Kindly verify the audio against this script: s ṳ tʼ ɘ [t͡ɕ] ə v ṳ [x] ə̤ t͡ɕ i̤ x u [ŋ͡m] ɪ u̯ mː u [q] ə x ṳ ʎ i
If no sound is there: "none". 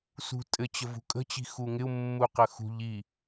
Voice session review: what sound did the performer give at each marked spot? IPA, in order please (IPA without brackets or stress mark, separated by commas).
t͡ɕ, kʼ, ŋ, q